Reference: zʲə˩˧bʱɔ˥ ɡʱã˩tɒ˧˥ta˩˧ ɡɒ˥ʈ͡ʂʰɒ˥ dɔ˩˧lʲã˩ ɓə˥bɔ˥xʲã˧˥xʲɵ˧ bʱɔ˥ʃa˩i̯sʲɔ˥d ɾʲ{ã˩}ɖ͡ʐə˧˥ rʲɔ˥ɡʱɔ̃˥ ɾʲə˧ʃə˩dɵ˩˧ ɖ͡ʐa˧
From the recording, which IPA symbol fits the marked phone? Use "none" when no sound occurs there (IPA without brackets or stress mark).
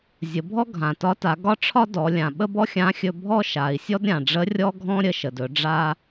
ã˩